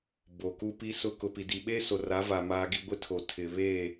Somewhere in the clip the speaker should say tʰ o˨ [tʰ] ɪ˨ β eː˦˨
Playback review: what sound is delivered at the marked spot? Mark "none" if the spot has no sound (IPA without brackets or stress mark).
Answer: tʰ